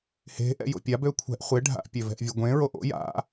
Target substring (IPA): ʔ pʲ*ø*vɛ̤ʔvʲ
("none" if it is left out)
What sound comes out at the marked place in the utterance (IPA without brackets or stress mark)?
ø